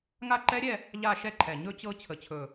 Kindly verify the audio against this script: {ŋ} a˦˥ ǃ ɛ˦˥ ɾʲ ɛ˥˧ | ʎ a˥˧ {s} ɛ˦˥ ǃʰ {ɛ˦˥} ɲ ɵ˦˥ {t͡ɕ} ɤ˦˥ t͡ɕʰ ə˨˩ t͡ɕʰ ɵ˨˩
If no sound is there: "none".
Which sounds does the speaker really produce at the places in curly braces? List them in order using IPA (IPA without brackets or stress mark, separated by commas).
ŋ, ʃ, ɛ˨˩, t͡ɕ